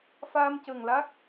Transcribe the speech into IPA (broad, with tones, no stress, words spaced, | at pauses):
fa˧mcə˨˩ŋla˦˥k̚